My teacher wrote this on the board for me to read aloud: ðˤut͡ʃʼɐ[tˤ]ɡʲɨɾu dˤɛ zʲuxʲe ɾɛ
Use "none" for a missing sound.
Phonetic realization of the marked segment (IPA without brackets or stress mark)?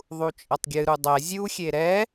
tˤ